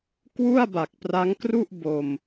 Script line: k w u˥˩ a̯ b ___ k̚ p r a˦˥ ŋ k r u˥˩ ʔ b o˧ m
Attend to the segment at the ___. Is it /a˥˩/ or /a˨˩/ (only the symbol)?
a˨˩